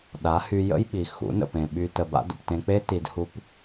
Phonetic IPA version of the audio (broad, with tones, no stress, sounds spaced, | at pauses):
ɗ a˨˦ h y˧ j ə̰˦ j ɓ i˨ x ṵ˨˦ n ə̰˨ p ẽ˨ ɓ y˧ t ə˧ b a̰˦ d ṵ˨ p t ẽ˧ k͡p e˦ t i˧ d h u˦ p